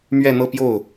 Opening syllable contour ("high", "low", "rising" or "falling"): falling